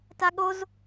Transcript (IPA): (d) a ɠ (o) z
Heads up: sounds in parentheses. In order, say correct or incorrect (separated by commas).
incorrect, correct